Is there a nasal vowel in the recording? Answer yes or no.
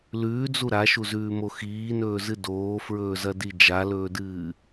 no